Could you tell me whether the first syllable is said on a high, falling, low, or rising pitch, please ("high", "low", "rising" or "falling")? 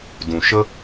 low